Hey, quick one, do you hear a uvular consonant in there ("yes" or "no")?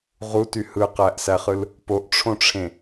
yes